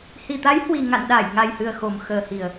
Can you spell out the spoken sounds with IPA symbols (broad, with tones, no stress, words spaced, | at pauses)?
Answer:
hi˨˩t̪a˨˦jhwi˨˩ ŋa̰˧˨n ɗaː˧˩j ŋa˨˩jhɨ˨˩ə̯ xo˨˩mxəː˨˩hi˨˩ə̯